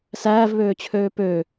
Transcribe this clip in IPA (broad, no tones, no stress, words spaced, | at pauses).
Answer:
sæːvβøːt͡ɕʰøː pø